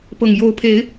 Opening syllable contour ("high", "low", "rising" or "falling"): low